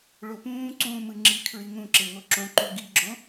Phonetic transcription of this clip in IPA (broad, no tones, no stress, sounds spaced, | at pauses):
ɭ o p ũː ǀ ũː m ɯ ŋ͡ǁ i kʰ ɹ i ŋ ũ ǁ e ŋ o ǁ õ ǃ u ɡ i ɡ͡ǁ õ